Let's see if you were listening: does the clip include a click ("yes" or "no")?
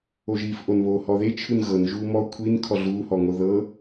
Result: no